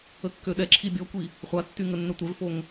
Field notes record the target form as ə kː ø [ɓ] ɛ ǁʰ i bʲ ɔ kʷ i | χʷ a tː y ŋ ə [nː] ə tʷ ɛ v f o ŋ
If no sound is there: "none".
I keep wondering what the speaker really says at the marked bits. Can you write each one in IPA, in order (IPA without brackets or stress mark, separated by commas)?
ɗ, nː